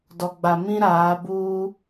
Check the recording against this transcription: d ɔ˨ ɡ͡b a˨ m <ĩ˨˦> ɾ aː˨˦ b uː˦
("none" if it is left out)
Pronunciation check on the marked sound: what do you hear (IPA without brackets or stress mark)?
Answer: ĩ˦